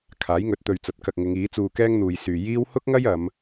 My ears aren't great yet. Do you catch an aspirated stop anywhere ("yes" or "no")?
yes